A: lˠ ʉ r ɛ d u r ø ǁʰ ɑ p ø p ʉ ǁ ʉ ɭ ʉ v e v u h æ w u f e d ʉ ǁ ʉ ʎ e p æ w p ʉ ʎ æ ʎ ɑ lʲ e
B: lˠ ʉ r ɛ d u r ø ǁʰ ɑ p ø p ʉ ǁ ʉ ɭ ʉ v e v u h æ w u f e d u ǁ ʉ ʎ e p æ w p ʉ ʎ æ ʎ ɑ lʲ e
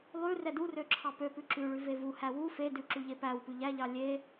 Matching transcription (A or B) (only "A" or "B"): A